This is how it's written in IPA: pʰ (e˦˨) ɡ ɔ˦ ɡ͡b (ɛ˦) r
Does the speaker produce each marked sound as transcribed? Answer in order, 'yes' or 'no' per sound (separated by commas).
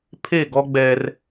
yes, yes